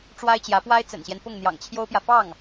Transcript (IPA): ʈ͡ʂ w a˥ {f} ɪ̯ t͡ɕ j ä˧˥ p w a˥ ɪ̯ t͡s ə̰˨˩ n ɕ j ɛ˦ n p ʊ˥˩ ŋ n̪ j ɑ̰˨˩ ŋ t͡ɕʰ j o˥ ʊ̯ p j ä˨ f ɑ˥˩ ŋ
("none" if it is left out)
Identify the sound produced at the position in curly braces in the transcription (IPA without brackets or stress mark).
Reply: none